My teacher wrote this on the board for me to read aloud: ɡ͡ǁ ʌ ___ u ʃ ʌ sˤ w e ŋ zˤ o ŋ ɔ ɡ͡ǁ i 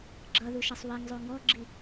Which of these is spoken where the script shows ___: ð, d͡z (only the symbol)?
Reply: ð